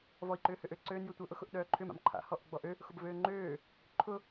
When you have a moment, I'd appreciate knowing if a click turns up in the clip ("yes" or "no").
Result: yes